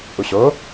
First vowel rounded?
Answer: yes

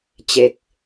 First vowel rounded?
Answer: no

